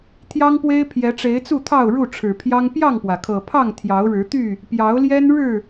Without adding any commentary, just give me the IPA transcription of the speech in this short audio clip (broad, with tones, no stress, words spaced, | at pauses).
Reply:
t̪ʰjɑ˦ŋpwe˦ɪ̯ pʰjɛ˨˦ʈ͡ʂe˨˦ɪ̯t͡su˥˨t̪ʰɑ˥˨ʊ̯ ɻu˥˨ʈ͡ʂʰɻ̩˨˩pʰjɑ˦ŋ pjɑ˥˨ŋpwä˩kʰɤ˨˩pʰɑ˥˨ŋ t̪ʰjɑ˨˦ʊ̯ɻɻ̩˨˦t̪y˥˨ | pjɑ˨˦ʊ̯ljɛ˦nɻɻ̩˥˨